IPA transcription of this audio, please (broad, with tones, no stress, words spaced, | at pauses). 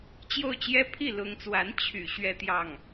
t͡ɕjo˥˩ʊ̯t͡ɕjɛ˥ pʰi˥˩lʊ˧˥ŋt͡swa˧˥n t͡ɕʰy̰˨˩ ɕɥɛ˥˧t̪jɑ˥˩ŋ